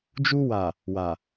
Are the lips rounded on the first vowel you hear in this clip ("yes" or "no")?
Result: yes